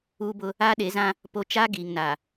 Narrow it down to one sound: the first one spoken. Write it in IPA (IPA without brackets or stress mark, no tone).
uː